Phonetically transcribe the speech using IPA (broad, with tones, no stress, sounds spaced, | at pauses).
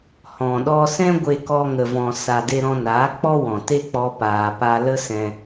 h ɔ̃˨ ɗ ɔ˧ s ɛ̃˦ ɡʷ e˧ k ɔ˧ ŋ ə˨ v ɔ̃˨ s a˨ d e˧ ɾ ɔ̃˧ n aː˨˦ k͡p ɔ˦ w ɔ̃˨ t e˦ k͡p ɔ˧ p aː˨ p a˧ l ə˦ s ɛ̃˧